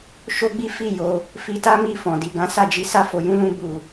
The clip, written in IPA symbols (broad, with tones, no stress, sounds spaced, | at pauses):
ʃ o˦ ɡ͡b i˦ f i˦˨ j o˧ | f i˧ t a˦ m i˦˨ f ɔ̃˨ d i˨ ɡ ã˨˦ s a˦˨ d͡ʒ i˧ s a˦ f o˧ j ũ˦ l ũ˦ b u˦˨